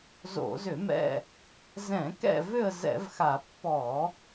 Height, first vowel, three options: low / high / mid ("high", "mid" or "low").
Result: mid